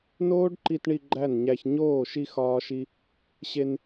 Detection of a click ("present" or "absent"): present